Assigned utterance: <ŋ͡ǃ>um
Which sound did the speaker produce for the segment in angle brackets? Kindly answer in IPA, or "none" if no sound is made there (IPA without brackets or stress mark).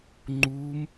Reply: ŋ͡ǃ